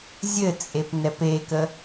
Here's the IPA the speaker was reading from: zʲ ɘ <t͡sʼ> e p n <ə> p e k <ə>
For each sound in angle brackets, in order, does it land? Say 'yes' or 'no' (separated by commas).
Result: yes, no, yes